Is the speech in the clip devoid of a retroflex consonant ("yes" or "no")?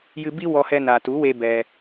yes